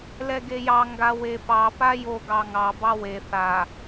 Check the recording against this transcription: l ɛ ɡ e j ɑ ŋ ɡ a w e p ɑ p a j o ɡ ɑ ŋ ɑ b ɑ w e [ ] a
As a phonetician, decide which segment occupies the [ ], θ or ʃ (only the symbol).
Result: θ